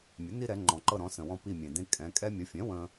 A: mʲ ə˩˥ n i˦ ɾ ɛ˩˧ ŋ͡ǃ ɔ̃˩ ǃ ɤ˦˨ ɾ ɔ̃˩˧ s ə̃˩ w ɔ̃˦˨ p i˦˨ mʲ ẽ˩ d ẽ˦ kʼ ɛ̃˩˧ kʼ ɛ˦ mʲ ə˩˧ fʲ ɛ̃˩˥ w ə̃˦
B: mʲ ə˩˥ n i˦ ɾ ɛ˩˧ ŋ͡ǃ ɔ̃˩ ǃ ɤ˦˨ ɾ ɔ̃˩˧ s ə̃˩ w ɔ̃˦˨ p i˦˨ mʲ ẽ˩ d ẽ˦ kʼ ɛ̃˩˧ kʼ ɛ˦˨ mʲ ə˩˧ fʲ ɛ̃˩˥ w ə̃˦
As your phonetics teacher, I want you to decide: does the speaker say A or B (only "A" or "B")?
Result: A